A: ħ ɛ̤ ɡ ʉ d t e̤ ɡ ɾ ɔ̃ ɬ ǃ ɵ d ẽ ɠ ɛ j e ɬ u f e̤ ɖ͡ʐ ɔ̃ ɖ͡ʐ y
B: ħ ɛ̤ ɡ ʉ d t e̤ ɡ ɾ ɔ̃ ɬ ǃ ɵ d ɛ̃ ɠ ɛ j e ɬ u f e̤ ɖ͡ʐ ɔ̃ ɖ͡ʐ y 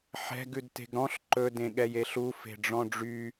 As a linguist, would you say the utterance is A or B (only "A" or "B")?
A